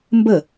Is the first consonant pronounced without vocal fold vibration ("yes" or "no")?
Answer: no